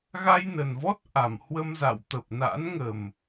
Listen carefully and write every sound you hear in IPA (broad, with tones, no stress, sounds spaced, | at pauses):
ɣ a˧ j n ə˨˩ n v ɔ˦˥ t̚ ʔ a˧˩ m h w ə˧ m z a̰˧˨ w t̪ ə˨˩ p̚ n a̰˧˥ n ŋ ə˨˩ m